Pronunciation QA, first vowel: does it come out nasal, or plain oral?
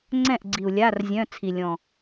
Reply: nasal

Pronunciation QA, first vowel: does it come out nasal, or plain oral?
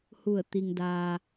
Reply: oral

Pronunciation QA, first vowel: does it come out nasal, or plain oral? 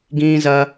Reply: nasal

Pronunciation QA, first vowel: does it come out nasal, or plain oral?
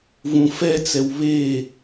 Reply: nasal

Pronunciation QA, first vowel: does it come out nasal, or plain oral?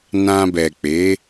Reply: nasal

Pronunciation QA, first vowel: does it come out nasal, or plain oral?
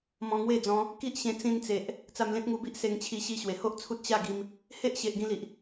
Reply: nasal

